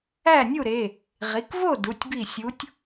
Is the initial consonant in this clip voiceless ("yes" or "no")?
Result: no